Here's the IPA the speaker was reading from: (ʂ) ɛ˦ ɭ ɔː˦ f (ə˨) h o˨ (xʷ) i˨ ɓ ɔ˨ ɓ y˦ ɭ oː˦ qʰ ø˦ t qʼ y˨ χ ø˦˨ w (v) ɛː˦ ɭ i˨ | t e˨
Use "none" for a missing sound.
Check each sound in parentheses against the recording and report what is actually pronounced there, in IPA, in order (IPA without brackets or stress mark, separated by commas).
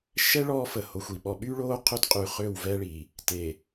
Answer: ʃ, ə˨, xʷ, v